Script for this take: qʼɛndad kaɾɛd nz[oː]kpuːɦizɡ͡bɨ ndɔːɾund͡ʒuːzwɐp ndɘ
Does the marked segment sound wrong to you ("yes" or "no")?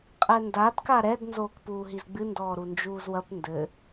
no